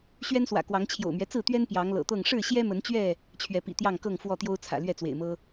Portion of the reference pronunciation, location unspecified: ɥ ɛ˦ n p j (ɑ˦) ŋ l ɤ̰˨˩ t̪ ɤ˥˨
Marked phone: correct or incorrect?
incorrect